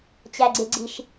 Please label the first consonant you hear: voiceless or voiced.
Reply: voiceless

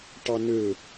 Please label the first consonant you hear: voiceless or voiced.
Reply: voiceless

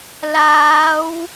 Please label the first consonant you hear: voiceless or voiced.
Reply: voiced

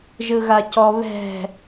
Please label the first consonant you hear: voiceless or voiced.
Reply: voiced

